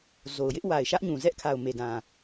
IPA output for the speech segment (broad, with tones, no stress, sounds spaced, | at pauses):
z o˨ ʊ̯ j ɪ˦ ʔ w a˨ ɪ̯ ʃ ä˦ ʔ ɲ ũ˨ z ɛ˦ ʔ kʰ a˨ ʊ̯ m e˨ d ã˨